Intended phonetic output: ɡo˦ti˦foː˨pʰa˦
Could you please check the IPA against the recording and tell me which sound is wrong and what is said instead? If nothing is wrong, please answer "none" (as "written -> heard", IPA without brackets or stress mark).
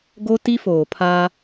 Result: none